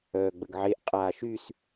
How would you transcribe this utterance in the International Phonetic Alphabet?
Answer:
œː ɡ͡b ə ɡ ʕ e ʔ qʼ aː ʃ y s

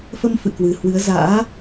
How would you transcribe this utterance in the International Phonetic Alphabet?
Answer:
f ə˧ m f ɨ̰˧˨ k w ɨ˨˩ h w ɨ˨˦ ə̯ z a̰ː˧˥

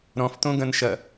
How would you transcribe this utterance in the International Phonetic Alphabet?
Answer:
ɾ ɔ̃ f t õ ɡ ɐ̃ n ʃ ɐ

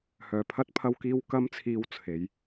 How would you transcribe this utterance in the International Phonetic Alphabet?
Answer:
h œː˨˩ pʰ ɐ˥ t̚ pʰ ɐ˧ w k iː˧ w k ɐ˥ m t͡sʰ iː˧ w t͡sʰ e˨˥ j

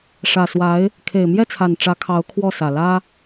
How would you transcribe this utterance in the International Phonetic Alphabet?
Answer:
ʂ ä˨˩ s w a˧˥ ɪ̯ | kʰ e˨˩ ɪ̯ m j ɛ˥˩ t͡sʰ a˨˩ n ʈ͡ʂ ä˧˥ kʰ ɑ˧˥ ʊ̯ kʰ w ɔ˥˩ s ä˨˩ l ä˥

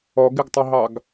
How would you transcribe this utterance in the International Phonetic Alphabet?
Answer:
ɔ ɡ ɪ ɡ tˤ ʊ ɦ ɑ ɡ

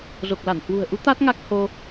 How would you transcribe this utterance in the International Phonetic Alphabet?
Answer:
z o˨˩ k̚ l a˧˩ n h w ṳ˨˩ ə̯ ʔ u˨˦ t̪ a˦˥ t̚ ŋ a˦˥ k̚ h o˧

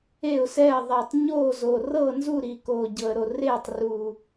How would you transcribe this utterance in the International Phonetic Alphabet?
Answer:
e˥˩ ʊ̯ s ɛ˥˩ ə̯ ðˤ ɛ˨˩ tˤ ɲ oː˥˩ z o˨˩ r ɤː˥˩ n z u˥˩ ɾ i˨˩ k oː˨˩ ɟ ɤ˨˩ ə̯ ɾ o˨˩ r eː˥˩ tˤ r u˨˩

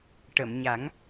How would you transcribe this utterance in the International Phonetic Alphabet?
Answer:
ʈ ə˨˩˨ m ɲ a˨˩˦ ŋ

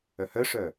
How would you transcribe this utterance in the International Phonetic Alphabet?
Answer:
œ h œ ʂ œ

